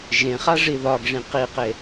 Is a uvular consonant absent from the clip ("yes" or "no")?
no